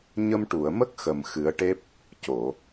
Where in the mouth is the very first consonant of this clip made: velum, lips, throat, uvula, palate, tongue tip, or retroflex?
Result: palate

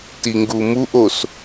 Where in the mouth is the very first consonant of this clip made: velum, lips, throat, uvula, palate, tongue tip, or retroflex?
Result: tongue tip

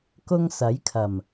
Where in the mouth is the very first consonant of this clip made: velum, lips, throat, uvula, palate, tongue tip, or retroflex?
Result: velum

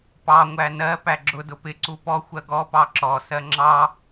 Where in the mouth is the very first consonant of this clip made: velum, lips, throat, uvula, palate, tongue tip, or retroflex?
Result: lips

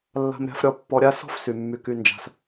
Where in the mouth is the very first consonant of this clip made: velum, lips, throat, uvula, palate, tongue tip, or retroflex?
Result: tongue tip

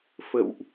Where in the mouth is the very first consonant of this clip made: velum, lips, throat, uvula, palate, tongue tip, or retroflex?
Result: lips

